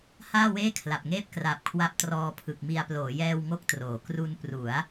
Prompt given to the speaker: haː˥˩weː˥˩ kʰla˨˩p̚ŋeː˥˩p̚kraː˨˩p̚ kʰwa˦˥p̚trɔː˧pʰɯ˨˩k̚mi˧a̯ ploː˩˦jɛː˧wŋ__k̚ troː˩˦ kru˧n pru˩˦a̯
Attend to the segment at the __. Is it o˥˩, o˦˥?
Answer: o˦˥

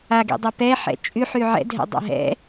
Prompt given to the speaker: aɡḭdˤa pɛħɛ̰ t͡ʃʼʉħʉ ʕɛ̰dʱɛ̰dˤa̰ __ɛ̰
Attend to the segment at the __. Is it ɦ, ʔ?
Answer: ɦ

